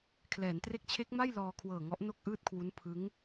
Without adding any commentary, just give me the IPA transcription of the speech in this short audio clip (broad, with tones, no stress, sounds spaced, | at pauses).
kʰ l ɛː˩˦ n t r e˦˥ k̚ t͡ɕʰ e˦˥ k̚ m a˥˩ j l ɔː˧ kʰ w ɤː˨˩ ŋ ɔ˦˥ ʔ n o˥˩ k̚ ʔ ɯː˥˩ t̚ kʰ w u˦˥ n pʰ ɯ˦˥ ŋ